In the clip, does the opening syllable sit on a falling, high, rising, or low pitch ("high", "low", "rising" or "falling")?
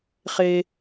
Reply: high